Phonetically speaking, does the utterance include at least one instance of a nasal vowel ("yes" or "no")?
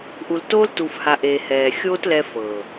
no